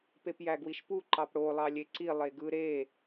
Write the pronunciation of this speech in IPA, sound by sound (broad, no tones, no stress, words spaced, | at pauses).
pepjæɡwiʃpu ǃɑpɽo lˠɑlʲeǀi lˠeɡɯ ɾe